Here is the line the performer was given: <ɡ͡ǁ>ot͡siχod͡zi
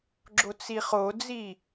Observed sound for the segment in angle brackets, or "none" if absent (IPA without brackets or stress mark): ɡ͡ǁ